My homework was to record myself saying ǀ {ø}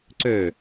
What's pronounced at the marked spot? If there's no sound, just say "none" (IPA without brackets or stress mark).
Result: ø